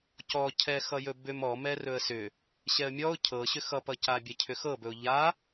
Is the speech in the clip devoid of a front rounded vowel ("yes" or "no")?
no